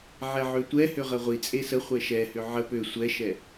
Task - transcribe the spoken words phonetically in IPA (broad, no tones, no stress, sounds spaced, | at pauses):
ʕ ɛ ʕ ø tʷ ɛ h ø ʁ ə ʁʷ i t͡sʼ e s ə χʷ ɛ ʃ ɛ h ʏ ʕ ə p ø sʷ ɛ ʃ ɛ